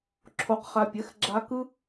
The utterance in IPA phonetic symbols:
ǁʰ o˧ q χ a˧ pʲ ɛ˨˦ x ɡ͡ǁ a˧ k ɯ˦

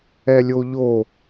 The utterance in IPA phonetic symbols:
ɛ lʲ o ʎ o

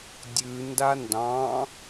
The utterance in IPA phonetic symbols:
dʲ ʉ n d a n d ɑ̃

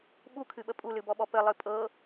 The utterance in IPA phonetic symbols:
ɓ u kʰ ɨ ɓ ə pʼ u l ɨ b ɔ ɓ ɔ p ə lˠ ɨ pʼ ɤ

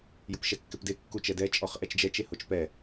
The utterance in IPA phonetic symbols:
j ʊ p ʃ ɛ kː ɪ p d e kː u t͡ʃ ɛ d ɛ t͡ʃʼ ɔ χ ʔ ɛ t͡ʃ d͡ʒ ɛ t͡ʃ e h o t͡ʃ p ɛ

